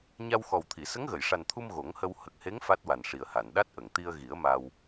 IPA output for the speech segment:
ɲ a˧ w x ɔ˨˩ w t̪ʰ i˨˩˨ s ə˧˥ ŋ ɣ ə˨˩˨ j ʂ a˨˩ n t̪ʰ u˧ m ɣ o˨˩˦ ŋ h ə˧ w h ə˨˩ k̚ h e˧˥ ŋ f a˦˥ t̚ w a˨˩ n ʂ i˨˩ ə̯ h a˨˩˨ n ɗ a˦˥ t̚ ʔ ə˨˩˨ ŋ t̪ i˧ ə̯ ɣ i˨˩˦ ə̯ m a˧ w

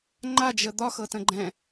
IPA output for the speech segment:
ŋ͡ǃ a d͡ʒ ə d̪ ɒ x ɤ t ə̃ ɡ͡ǃ ɛ̃

